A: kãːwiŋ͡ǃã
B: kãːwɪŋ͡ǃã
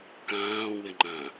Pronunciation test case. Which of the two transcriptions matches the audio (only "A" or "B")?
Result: B